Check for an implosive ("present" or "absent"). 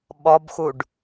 present